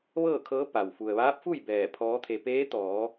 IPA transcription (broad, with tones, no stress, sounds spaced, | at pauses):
ʋ ɤː˥˨ kʰ ɤː˧˥ p a˩ w f u˩ ə̯ ʋ aː˧˥ p̚ f u˥˨ j b ɛː˧˩ pʰ ɔː˧˥ t̪ʰ e˧ p eː˧˥ t̪ ɔː˩˧